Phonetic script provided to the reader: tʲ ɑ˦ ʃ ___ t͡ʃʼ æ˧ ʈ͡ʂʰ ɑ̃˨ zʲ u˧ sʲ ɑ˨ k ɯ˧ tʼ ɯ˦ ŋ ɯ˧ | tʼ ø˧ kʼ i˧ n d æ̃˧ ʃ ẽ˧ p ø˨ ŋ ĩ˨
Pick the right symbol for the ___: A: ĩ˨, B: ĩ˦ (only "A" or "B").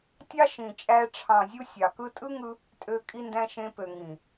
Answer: A